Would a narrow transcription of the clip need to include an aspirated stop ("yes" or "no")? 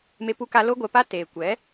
no